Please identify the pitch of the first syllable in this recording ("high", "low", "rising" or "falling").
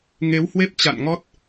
rising